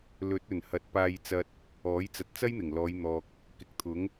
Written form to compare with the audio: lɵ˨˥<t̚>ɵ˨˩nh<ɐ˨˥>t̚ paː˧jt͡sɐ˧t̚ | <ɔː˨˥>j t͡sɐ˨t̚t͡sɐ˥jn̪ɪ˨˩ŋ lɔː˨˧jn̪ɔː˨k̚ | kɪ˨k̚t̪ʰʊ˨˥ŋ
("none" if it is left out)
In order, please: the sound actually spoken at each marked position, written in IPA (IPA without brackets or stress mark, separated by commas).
t̚, ɐ˨˥, ɔː˨˥